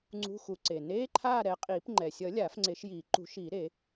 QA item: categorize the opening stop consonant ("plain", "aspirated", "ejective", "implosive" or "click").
click